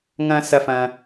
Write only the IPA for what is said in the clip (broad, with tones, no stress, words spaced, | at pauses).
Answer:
ŋɐ̃˦ sɐ˧ fɐ̃˧